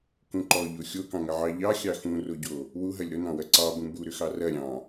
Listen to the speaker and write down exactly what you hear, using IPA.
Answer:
k ũ ǃ ɔ ʎ o xʲ o k ɑ̃ ŋ ɐ ʕ ɑ ʎ ɑ xʲ ɑ x ũ r o ɟ o | w u ɦ ɐ lʲ ɾ ʊ n ɑ̃ w ɐ ǀ ɑ b ũ b u ɾ ʏ x ɑ r ɐ ɾʲ ɑ̃

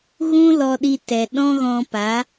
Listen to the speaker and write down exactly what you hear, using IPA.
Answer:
ɣ ũ˦ l ɔ˧ ɗ i˧ t ɛ˨ ɗ ɔ̃˦ ɣ ɔ̃˧ p a˨˦

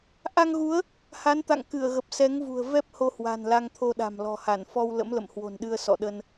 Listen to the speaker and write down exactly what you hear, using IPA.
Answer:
ʔ a˧ ŋ ɣ u˨˦ ə̯ | h a˨˦ n t̪ a̰˧˨ ŋ k ɨ˧˩ ə̯ ɣ ə˨˩ p̚ s ɛ˨˦ ŋ v ṳ˨˩ ə̯ v ɛ˦˥ p̚ h o˧ h w a̤˨˩ n l a˧ ŋ t̪ʰ o˧ ɗ a̤˨˩ m l ɔ̤˨˩ h a˧˩ n f ɔ˧ w l ə̰˧˥ m l ə̰˧˨ m h w o̤˨˩ n ɗ ɨ˧ ə̯ s ɔ̰˧˨ ɗ ə˧ n

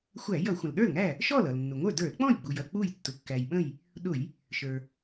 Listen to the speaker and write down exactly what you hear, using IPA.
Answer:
xʷ æ˧˩˧ j ʌ˧˩˧ xʷ ə̃˩ l ɗ ə˞˥˩ l ŋ æ˥˩ | ʃ ɔ˥˩ l ʌ˩ l nː ʊ˩ ŋʷ ə˞˥˩ d ə˞˧˩˧ l k͡p ɔ̃˥˩ j ɡ͡b u˩ j ʌ˥˩ k͡p u˥˩ j tː ʊ˩ kː æ˩ j ɓ ə̃˥˩ j | ɗ ʊ˧˩˧ j | ʃ ə˞˩

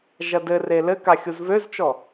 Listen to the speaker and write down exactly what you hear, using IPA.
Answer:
ʒ ɐ d ɘ r e l ɘ k a xʲ u z v ø z t͡ʃ ɔ

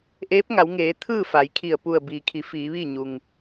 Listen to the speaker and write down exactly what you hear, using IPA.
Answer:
ʔ eː˧˥ p̚ ŋ a˩˧ w ŋ eː˩˧ t̪ʰ ɯː˥˨ f a˩˧ j kʰ i˧˩ ə̯ p u˧˩ ə̯ b iː˩ kʰ i˩˧ f iː˩˧ ʋ iː˥˨ ɲ u˩ ŋ

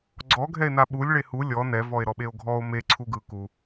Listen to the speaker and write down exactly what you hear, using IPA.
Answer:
ɡ͡ǀ ɔ ɡʱ ɛ e̯ n a ɓ u lʲ ɭ e h u lʲ ɔ n ɛ v ɔ e̯ ɾ ɔ ɓ e o̯ ɡʱ ɔ o̯ m e ǀʰ u ɡ ɯ k u

